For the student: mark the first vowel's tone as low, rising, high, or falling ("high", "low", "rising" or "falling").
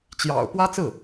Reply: low